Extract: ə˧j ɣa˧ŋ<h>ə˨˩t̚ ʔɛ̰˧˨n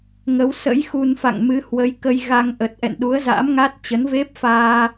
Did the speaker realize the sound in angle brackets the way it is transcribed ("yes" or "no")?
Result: no